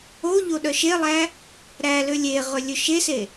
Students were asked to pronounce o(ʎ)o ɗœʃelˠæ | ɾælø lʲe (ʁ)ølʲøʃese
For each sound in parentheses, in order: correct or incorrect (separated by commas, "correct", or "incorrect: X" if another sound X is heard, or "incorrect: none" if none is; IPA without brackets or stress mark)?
correct, correct